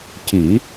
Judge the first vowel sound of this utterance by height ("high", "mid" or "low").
high